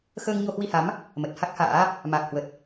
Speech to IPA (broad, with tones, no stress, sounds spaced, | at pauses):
x əː˧ ŋ ɲ o˧ h w i˧ h a˨˦ m | m ə˨˩ t̚ h a˦˥ k̚ h a̰ː˧˥ | m a˨˩ k̚ h w ə˨˩ t̚